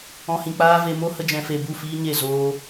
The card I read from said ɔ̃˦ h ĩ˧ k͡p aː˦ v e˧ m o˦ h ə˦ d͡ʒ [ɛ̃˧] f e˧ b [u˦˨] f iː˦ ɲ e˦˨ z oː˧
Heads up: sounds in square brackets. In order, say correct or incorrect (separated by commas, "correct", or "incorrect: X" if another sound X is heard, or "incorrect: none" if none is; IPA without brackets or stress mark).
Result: correct, correct